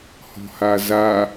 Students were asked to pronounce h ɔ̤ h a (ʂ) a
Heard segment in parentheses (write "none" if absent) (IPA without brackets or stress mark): z